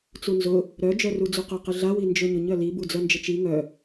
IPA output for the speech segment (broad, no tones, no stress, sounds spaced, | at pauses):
t͡s u n z ʊ | ɾ œ d͡ʒ œ r u d͡z u q œ q ɪ ɮ a w i n d͡ʒ ø ɲ ʊ ɲ œ l i b u d͡z œ n d͡ʒ ɪ t͡ʃ i ŋ œ